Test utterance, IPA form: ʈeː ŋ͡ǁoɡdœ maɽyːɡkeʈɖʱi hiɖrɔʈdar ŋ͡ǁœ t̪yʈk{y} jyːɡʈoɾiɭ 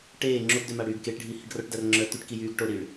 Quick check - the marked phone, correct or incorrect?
incorrect